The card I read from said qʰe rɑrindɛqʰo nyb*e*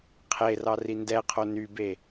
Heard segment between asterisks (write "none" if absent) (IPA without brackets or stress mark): e